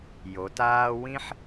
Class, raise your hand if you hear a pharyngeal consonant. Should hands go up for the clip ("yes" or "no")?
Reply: yes